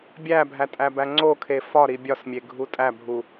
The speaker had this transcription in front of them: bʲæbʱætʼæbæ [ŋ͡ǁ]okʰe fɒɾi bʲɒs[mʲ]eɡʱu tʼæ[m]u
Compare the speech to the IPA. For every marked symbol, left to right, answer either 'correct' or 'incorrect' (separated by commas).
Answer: incorrect, correct, incorrect